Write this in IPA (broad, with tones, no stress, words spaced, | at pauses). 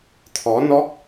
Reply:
t̪ʰɔ˨˦nɔ˦˥k̚